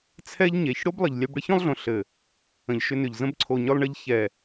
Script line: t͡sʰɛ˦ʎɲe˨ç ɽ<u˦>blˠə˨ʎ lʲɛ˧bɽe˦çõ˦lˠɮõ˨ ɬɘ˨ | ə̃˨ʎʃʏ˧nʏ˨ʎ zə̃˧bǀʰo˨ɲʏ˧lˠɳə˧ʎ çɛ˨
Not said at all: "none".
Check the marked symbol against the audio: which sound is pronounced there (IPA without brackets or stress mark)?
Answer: o˦